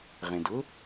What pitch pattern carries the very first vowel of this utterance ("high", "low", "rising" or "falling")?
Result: low